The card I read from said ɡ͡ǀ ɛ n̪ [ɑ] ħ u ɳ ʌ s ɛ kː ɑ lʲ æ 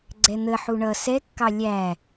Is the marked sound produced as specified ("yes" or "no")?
no